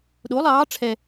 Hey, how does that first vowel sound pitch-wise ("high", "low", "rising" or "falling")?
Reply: rising